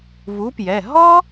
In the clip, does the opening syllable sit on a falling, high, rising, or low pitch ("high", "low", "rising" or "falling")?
rising